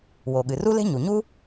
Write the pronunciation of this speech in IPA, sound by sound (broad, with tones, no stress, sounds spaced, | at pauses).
w o˩ ɠ ɨ˩ r u˥ l e̤˥ ɲ u˩ ɲ u˥